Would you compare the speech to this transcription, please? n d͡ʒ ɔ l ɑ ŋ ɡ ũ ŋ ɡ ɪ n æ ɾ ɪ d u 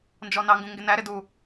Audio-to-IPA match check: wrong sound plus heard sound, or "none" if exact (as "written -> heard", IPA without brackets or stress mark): l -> n